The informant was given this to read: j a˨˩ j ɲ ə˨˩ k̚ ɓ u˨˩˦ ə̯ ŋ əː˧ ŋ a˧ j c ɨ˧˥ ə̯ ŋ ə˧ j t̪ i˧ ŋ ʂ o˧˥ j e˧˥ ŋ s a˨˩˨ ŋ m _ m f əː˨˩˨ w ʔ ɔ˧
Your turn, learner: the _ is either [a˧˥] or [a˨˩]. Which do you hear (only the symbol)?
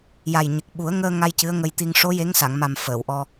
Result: a˨˩